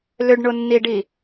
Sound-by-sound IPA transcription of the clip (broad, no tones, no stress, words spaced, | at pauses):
lʏɖɳʊnːiɖi